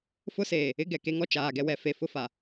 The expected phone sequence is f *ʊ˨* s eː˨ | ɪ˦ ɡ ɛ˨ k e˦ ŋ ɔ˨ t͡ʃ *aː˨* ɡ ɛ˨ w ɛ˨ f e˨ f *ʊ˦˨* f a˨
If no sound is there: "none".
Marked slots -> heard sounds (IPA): ʊ˦, aː˨, ʊ˦

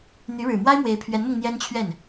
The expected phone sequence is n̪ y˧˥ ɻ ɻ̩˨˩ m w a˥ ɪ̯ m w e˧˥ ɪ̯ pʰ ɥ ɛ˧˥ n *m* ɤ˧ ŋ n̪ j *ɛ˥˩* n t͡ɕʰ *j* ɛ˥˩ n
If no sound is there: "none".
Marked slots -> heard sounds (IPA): m, ɛ˥, ɥ

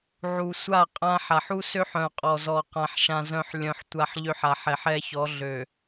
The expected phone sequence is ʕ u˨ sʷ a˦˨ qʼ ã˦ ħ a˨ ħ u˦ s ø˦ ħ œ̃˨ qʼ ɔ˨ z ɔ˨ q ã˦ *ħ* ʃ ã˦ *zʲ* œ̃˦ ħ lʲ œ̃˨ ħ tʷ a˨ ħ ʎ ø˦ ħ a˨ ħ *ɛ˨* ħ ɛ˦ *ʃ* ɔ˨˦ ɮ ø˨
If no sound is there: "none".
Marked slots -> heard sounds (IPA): ħ, z, ɛ˨, ç

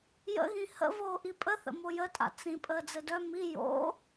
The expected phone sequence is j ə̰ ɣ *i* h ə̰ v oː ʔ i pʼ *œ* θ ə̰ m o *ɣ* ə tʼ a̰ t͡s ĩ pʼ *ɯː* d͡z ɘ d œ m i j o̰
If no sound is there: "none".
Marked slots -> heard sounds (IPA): ĩ, ə, j, əː

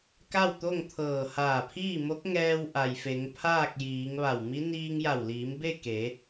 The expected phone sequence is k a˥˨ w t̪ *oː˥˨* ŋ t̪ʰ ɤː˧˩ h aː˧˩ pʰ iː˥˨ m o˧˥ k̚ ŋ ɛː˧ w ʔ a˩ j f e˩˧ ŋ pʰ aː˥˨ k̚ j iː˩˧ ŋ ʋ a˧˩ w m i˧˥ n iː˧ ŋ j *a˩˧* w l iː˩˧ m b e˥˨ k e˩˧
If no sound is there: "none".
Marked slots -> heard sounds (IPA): o˥˨, a˧˩

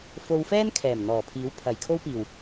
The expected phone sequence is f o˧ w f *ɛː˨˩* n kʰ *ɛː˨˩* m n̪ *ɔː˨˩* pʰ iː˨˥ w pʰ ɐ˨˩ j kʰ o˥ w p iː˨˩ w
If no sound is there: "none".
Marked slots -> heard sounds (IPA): ɛː˥, ɛː˨˩, ɔː˨˩

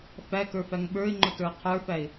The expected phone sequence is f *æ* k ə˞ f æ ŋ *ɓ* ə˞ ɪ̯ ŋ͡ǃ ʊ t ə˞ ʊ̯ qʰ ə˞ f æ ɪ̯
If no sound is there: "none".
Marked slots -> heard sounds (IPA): æ, ɓ

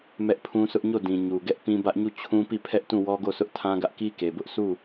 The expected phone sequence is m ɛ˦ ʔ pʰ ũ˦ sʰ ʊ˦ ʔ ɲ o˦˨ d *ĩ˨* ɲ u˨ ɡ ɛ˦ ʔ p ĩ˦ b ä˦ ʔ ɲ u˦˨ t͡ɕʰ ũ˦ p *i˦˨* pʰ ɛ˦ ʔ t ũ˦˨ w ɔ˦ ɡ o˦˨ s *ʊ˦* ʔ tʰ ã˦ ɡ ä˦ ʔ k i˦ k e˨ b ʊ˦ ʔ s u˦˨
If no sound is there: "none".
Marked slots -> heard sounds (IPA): ĩ˨, i˦˨, ʊ˦

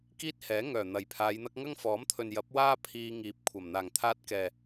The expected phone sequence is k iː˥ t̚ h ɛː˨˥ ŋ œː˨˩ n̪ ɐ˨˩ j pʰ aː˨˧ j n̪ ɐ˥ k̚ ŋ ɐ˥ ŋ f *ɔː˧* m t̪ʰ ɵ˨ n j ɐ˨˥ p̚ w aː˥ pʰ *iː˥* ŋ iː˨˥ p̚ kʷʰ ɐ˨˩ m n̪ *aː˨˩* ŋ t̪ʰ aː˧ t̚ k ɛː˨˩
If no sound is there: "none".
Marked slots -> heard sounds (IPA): ɔː˨˥, iː˧, aː˨˩

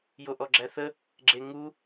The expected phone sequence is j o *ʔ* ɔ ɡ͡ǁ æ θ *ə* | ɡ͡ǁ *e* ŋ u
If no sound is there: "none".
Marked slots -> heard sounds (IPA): ʔ, ə, e

